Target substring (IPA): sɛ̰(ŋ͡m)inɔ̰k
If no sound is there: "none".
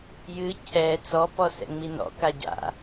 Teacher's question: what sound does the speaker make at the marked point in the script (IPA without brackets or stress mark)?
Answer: ŋ͡m